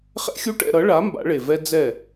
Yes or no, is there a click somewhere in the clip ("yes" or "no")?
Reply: no